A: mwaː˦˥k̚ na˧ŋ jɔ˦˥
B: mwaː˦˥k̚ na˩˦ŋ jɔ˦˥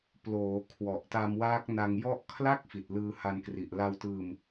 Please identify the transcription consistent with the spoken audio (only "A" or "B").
A